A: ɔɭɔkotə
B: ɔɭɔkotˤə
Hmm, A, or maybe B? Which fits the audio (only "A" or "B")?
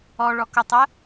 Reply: B